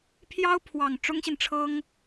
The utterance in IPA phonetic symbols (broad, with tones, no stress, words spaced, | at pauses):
pʰjɑ˥ʊ̯pʰwɑ˨˩ŋ ʈ͡ʂʊ˥ŋɕi˨nʈ͡ʂʰɤ˥ŋ